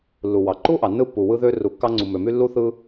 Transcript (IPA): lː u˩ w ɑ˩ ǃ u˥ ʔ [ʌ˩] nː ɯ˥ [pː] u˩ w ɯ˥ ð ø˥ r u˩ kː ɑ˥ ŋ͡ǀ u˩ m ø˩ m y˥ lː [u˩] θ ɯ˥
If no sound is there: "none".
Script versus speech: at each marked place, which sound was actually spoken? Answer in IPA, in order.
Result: ɑ˩, pː, u˥

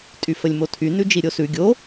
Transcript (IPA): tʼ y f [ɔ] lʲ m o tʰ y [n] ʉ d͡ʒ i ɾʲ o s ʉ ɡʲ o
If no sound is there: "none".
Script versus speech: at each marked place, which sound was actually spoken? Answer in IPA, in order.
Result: ə, n

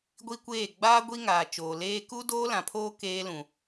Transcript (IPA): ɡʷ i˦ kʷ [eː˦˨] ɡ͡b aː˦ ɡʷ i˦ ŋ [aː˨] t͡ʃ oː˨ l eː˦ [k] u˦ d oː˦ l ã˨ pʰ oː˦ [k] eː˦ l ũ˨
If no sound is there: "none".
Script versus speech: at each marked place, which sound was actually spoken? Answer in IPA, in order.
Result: eː˦˨, aː˨, k, k

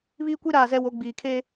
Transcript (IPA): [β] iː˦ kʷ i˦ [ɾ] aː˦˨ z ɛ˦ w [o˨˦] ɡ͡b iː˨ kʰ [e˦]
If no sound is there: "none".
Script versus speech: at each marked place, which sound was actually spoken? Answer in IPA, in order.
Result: β, ɾ, o˨˦, e˦

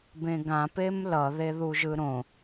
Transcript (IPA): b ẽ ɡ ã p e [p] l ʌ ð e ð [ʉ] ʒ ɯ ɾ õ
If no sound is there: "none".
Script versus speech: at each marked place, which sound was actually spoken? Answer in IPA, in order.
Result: m, u

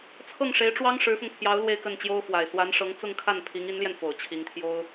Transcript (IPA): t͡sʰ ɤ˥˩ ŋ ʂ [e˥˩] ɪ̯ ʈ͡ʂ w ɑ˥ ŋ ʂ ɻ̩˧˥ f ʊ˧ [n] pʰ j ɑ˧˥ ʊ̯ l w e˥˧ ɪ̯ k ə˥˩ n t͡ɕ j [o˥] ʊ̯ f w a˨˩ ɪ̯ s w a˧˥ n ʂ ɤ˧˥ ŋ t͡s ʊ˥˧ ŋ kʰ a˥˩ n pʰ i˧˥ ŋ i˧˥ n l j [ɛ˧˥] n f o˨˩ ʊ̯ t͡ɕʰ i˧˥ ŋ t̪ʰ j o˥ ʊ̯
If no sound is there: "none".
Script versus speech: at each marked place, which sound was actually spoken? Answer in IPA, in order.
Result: e˧˥, ŋ, o˥, ɛ˧

